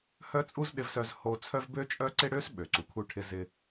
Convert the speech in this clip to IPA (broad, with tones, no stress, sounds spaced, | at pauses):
h œ˥ t͡sʼ u˥ z ɗ ɪ˧ v s œ˧ z h o˧ t͡sʰ œ˥ v b ø˥ t͡ʃʼ œ˥ ǀ ɪ˥ ɽ ø˥ s ɓ ø˩ ǀ u˩ kʰ u˧ ʈʰ ɪ˧ z ɪ˧